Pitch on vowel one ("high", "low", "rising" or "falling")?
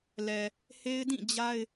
low